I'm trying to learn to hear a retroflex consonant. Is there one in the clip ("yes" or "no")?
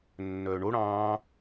yes